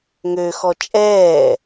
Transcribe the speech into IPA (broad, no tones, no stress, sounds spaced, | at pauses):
ŋ ø x ɔ t͡ʃʼ ɛː